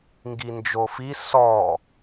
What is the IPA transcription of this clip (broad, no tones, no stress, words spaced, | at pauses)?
ŋɡind͡ʒofi sɔ